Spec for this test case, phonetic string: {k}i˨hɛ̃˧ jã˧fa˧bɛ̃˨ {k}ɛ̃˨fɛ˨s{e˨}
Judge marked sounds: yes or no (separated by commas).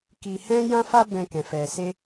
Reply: yes, yes, no